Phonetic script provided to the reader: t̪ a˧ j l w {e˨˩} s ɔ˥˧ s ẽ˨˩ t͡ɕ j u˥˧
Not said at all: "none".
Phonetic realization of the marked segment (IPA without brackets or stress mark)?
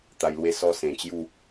e˥˧